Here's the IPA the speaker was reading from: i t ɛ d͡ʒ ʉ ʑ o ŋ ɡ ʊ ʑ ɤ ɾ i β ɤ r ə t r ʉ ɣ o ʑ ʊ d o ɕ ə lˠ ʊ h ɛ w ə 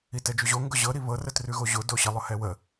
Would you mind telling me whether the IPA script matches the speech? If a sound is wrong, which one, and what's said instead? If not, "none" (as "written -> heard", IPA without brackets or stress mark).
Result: none